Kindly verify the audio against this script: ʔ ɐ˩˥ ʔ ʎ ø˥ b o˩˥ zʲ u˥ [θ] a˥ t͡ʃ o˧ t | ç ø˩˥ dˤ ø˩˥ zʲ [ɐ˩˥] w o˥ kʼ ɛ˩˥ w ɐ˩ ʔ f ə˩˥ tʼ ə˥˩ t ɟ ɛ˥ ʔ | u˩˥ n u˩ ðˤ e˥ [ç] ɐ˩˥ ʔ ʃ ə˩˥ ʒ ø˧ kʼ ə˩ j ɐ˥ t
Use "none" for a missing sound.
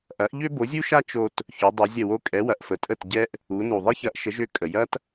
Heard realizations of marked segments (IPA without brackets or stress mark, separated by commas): ʃ, ɐ˥˩, ç